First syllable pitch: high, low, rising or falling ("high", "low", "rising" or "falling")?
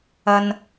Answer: low